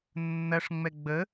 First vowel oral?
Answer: yes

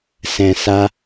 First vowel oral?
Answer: no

